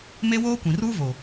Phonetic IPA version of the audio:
m e˦ w oː˦ kʷ ĩ˨ r uː˦ v o˨

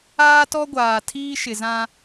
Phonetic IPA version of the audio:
aː˦ t ɔ˦ ɡʷ aː˨ tʰ iː˦ ʃ ɪ˨ z ã˦

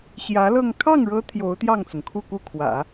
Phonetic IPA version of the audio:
ɕ j ä˧˥ l ɤ˥˧ ŋ kʰ ɑ˥˩ ŋ ɻ ɤ˧˥ t̪ʰ j o˧˥ ʊ̯ t̪ j ɑ˥˩ ŋ t͡s ʊ˩ ŋ kʰ u˥˧ k u˥˩ kʰ w ä̰˨˩˦

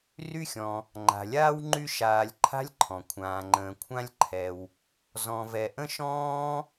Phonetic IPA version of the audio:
r y˦ xʲ ɔ̃˩ | ŋ͡ǃ a̤˩ lʲ aː˥ w ŋ͡ǃ y˦ ʃ aː˨ lʲ ǃʰ a̤˥ lʲ ǃʰ ɔ̃˩ kʷʰ ãː˩ ŋ͡ǃ ə̃ː˩ kʷʰ ã˦ lʲ ǃʰ ɛ˩ w | z ɔ̃˨ v ɛ˨ ʔ ə̃˥ ʃ ɔ̃ː˥

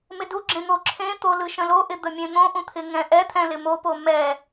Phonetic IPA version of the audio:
m ɪ d u ɡ͡ǁ ẽ n̪ o ǁʰ ẽ t̪ o l ɯ ʃ ə̃ l o ʔ ɪ d̪ ə mʲ ẽ n̪ õ ʔ ũ t̪ʰ ɪ ŋ ɛ̃ ʔ ɛ t̪ʰ ɛ̃ l ɪ m o p o m ɛ

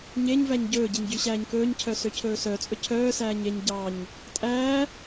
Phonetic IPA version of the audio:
ɲ e ɲ v æ ɲ ɟ ɵː ɟ i ɲ ɟ y ɕ æː ɲ k ɵː ɲ cʰ œ s ø cʰ ɵː s œ t͡sʼ ɵ cʰ œː s æː ɲ e ɲ ɟ ɑ ɲ | tʼ æː

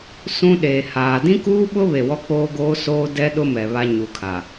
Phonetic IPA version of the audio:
s ũ˦ ɗ eː˨ h aː˨ d ĩ˦ k uː˦ ɓ ʊ˦ β e˨ w ɔ˦ k͡p oː˦ ɡ oː˦ s oː˦ d ɛ˦ ɗ ʊ˦ m ɛ˨ β a˦ ɲ u˨ kʰ a˨

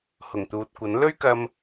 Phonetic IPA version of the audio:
h ʊ˨˩ ŋ t̪ uː˨ t̚ kʷ ɐ˨˥ n l ɵ˥ ɥ k ɐ˧ m

